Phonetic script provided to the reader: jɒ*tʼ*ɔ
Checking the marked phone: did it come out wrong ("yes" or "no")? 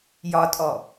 no